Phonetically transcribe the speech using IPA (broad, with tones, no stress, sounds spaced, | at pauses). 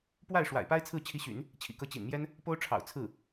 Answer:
p w a˥˩ ɪ̯ ʂ w a̰˨˩ ɪ̯ p a˥ ɪ̯ t͡sʰ ɹ̩˥˩ t͡ɕʰ i˧˥ ɕ y̰˨˩˦ n | t͡ɕʰ ḭ˨˩ k ɤ˧˥ t͡ɕ ḭ˨˩ n m j ɛ˥ n | p o˥ ʊ̯ ʈ͡ʂʰ ɑ̰˨˩ ʊ̯ t͡sʰ ɹ̩˥˩